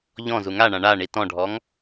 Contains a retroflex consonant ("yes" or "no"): yes